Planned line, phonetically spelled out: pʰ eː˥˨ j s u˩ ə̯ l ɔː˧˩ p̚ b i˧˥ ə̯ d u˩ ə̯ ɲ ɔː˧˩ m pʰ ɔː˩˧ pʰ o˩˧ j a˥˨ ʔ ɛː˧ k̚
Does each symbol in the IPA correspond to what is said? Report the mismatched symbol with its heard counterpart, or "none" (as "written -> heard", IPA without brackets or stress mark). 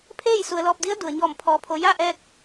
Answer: b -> d